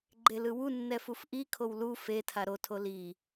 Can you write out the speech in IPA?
ɡ͡ǃ e l ɯ w u nː ɛ f u f ʔ i kʰ o w l u f e tʰ a ɾ o tʰ o l i

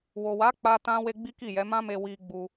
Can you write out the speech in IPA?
w o˨ w a˨˦ k͡p a˦ t ã˦ w e˦ ɡ͡b i˦ k i˦˨ j ɛ˨˦ m ã˦ m e˧ w i˧ ɡ͡b u˧

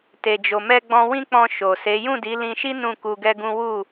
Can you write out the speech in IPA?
t e˨ d͡ʒ o˨ m ɛ˧ ɡ͡b ɔ̃˧ w ĩ˦ k͡p ɔ̃˧ ʃ o˨ s e˨˦ j ũ˦˨ d i˨˦ l ĩ˧ ʃ i˦ n ũ˦˨ k u˧ ɡ ɛ˦ ɡ ũ˦ w u˦˨

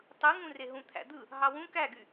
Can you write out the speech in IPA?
tˤ ɯ ŋ ũ r e ɦ ũ t̪ʰ æ̰ d̪ ɯ | ɦ ɑ w ũ k æ ɡ y

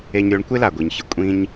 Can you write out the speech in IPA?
e˧ ɲ ɾʲ o˧ ɳ kʷ e˥ l a˩ ɡʷ i˩ ɲ ç ɪ˩ kʷʼ ĩ˧ ɲ

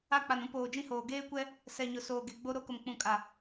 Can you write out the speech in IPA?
a˦˨ k͡p a˨ n ũ˦ p oː˨ d͡ʒ ĩ˦ h oː˨ ɡ eː˦ kʷ ɛ˦ | s ɛ˨ ɲ ʊ˨ s oː˨ ɡ e˨ ɡ͡b o˦ ɾ o˦ k ʊ˨ m k͡p ũ˨ kʼ a˨

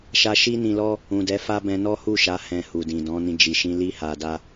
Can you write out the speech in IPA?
ʃ a˦ ʃ i˦ n ĩ˧ l ɔ˦ | ũ˨ d ɛ˨˦ f a˦ b ɛ̃˧ n ɔ˦ h u˦˨ ʃ a˨˦ h ɛ̃˧ h u˨ d ĩ˨ d ɔ̃˨˦ n ĩ˧ d͡ʒ i˨ ʃ ĩ˧ l i˦ h a˧ d a˦

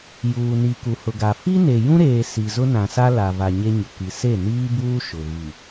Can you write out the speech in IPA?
j uː˨ n i˨ k u˨ h ʊ˨ ɡ a˨ f i˦ n e˨ j ũ˦ ɾ eː˨ s i˨ z ʊ˦ n ã˨ s a˦ l a˨ v a˨ ɲ e˦ ɲ ʊ˨ k i˨ s e˦˨ n iː˦ b uː˦ ʃ ʊ˨ ɣ i˨

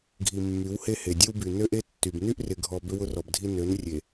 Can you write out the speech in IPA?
ɡʱ i˨ mː y˨˦ w h e˦ h e˨ dʲ e˦ w b y˨ n ø˦ ʔ e˦ tː y˨ b n y˦ ʔ r ɪ˨ ɡʱ ɔ˨ b ʏ˦ w ʊ˦ r ɔ˨ b dʱ i˦ n ø˨˦ n rʲ e˨

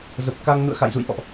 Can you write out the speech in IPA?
z ə˨˩ p̚ k a˧ ŋ n ṵ˧˨ ə̯ x a̰˧˨ j z ṵ˧˨ j ʔ ɔ̰˧˨ ʔ

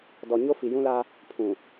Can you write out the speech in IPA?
d ɔ˨ ɲ o˦ f i˨ j ũ˦ l a˦ | pʰ ũ˨

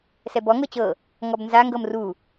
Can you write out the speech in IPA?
s ɛ b ɔ ŋ ɤ t͡ɕ ɤ | ŋ ɔ b n z a ŋ ɡ ɤ m r u

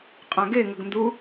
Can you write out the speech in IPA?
qʼ ã ɡ e ŋ ə ɡ n d u

